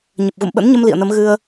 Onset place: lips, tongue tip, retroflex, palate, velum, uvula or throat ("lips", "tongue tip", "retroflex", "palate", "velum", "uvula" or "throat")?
palate